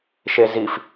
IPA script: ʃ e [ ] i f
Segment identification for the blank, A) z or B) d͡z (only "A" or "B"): A